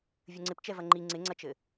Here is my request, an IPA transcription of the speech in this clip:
vʲɘŋ͡ǀɪp t͡ʃɛvɐŋ͡ǃi ŋ͡ǀɪŋ͡ǀɐt͡ʃɘ

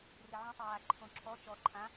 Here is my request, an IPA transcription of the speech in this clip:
rɪʕũ tˤɪwaǃʰõǁʰɔ t͡ʃɔ ǃʰã

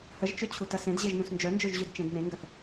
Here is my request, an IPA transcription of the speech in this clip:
həʒt͡ʃʏ t͡ɕʰutɐsẽd ʑeʒnũsnd͡ʒœnd͡ʒøʒ ʑydt͡ʃẽdnẽŋɡɐθ

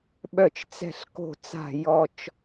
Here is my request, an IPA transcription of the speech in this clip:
ɓœ˦˨t͡ʃt͡sɛ̤˦˨ɬko̤˦˨t͡sa̤˦˨ jɔ˦t͡ʃ

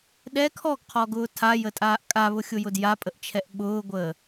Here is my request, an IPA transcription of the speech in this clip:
ɗɛ kʰɔɡqʰɔɡʊː tʰajətʼaːʔ kʼaβʊxʲʊjʊd japʼəʔt͡ʃʰɛʔ ɓʊːɡʷəː

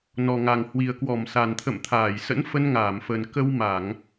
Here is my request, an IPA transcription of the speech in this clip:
nɔ˨˩ŋa˨˩ŋ hwi˨˩ə̯kwɔ˧˩m sa˨˩nt̪ʰə̰˧˨mt̪ʰaː˧˩jsə̰˧˥n fə˧nŋaː˧˩mfə˨˩n kə˧w ma˧˩˨ŋ

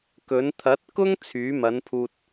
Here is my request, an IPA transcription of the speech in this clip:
kɵ˨˥n t̪ʰɐ˨˥t̚kʊ˥ŋ t͡sʰyː˨˥ mɐ˨˥n pʰuː˧t̚

